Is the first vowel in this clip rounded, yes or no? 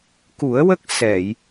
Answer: yes